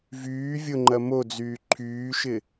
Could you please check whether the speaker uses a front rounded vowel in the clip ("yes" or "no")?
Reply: yes